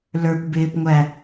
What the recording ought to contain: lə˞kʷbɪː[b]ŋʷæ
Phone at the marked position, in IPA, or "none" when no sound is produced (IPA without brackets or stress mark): p